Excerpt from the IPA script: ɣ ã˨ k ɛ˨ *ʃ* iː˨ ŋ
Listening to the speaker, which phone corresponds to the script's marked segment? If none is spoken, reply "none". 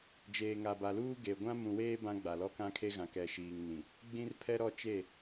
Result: ʃ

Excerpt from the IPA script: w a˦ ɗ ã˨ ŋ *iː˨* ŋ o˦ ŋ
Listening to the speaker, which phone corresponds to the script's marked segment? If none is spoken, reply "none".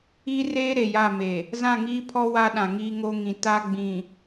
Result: iː˦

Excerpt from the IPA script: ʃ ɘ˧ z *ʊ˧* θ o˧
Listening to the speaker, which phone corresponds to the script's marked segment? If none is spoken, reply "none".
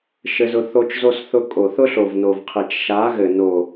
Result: ʊ˧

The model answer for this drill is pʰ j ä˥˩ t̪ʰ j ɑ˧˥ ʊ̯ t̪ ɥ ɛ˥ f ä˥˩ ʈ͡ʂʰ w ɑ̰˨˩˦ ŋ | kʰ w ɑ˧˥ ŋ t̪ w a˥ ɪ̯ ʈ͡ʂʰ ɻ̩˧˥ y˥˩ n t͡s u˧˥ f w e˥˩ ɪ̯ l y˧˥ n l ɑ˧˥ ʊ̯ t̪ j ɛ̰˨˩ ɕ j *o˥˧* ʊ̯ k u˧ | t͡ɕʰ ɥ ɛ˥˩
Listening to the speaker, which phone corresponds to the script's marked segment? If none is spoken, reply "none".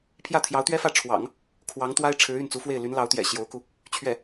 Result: o˧˥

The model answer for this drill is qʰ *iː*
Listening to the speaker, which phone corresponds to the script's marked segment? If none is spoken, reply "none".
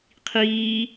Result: iː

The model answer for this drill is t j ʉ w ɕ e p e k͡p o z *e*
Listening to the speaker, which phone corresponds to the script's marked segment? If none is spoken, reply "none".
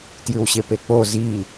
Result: i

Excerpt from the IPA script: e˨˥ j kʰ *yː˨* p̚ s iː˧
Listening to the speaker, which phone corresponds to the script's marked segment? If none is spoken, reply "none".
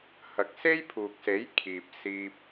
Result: iː˨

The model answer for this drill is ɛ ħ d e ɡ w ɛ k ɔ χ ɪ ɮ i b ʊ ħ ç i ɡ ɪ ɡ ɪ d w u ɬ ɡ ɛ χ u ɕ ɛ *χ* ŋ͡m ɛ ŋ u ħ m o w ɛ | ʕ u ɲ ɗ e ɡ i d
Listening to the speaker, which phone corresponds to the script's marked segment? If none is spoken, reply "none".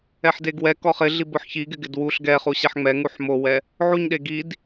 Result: ħ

